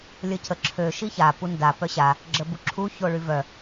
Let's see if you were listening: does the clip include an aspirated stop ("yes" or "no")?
yes